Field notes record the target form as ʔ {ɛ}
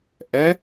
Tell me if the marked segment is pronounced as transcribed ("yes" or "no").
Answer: yes